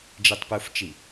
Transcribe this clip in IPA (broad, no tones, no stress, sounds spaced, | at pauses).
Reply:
d͡ʒ e tˤ p u f t͡ʃ i